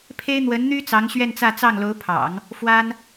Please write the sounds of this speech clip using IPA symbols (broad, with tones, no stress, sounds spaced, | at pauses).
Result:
pʰ e˥ ɪ̯ n̪ w ə˧˥ n n̪ y˥ t͡s ɑ˧˥ ŋ ɕ ɥ ɛ˥˧ n t͡s ä˥˧ t͡s ɑ˥˩ ŋ l o˧˥ ʊ̯ pʰ ɑ̰˨˩˦ ŋ | f w a˥ n